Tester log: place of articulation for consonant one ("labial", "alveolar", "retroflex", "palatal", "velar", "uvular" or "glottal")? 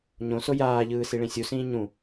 palatal